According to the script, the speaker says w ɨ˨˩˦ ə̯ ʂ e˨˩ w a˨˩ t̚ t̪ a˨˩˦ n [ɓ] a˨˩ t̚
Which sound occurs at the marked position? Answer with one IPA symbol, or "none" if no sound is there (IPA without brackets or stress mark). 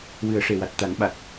ɓ